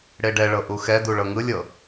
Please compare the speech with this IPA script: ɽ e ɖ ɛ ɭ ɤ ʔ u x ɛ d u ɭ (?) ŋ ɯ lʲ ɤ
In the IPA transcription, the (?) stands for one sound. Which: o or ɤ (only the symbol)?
ɤ